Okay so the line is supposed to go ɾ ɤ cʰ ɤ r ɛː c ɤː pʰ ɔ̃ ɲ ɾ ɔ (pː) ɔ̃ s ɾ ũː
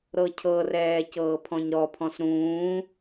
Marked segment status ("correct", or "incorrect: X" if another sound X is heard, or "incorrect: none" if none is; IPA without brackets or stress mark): incorrect: pʰ